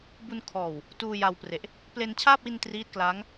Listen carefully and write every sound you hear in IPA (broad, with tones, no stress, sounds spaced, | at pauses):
b u˧ n kʰ ɔː˨˩ w | t uː˧ j a˧ w p r e˨˩ ʔ | p l e˧ n t͡ɕʰ aː˥˩ p̚ w i˧ n t r iː˦˥ t̚ k l aː˦˥ ŋ